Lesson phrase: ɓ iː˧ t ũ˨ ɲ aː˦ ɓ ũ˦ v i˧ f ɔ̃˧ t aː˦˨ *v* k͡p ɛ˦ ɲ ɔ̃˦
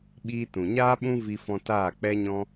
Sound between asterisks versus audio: incorrect: none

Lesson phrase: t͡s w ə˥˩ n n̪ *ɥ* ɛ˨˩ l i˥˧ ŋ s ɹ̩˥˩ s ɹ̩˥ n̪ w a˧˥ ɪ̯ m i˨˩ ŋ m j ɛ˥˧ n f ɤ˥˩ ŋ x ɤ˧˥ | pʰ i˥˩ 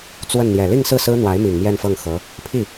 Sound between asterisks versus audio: incorrect: j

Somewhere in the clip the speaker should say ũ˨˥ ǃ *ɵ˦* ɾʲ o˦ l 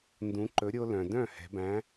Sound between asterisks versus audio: incorrect: ɵ˨˥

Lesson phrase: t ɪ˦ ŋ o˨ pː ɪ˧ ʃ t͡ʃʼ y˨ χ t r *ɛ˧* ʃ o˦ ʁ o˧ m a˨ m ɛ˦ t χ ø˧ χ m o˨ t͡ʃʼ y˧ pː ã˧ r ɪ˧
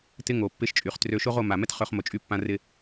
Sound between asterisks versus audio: incorrect: ø˧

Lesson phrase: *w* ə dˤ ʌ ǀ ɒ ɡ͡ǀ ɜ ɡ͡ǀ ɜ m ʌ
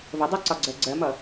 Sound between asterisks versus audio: incorrect: v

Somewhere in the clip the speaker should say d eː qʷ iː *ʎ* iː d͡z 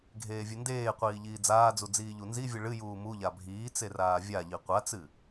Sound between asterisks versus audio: correct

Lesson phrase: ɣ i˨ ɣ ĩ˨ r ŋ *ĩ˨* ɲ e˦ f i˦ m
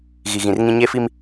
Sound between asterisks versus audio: incorrect: ĩ˦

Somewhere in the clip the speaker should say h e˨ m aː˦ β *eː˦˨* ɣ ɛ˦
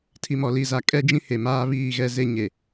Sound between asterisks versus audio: incorrect: iː˦˨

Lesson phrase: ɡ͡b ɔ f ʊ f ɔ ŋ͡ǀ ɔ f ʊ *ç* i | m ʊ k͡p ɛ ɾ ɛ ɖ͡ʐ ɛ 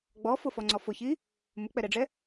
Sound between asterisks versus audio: correct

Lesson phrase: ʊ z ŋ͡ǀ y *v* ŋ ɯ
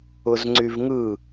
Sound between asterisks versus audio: correct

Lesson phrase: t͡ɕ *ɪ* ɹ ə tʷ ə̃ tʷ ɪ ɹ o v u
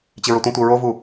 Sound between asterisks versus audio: correct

